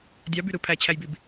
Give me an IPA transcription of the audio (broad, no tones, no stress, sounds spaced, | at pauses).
dʲ ɑ b y ɾ ɯ pʰ æ t͡ɕʰ æ j b i b